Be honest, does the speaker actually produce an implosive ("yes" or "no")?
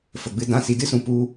no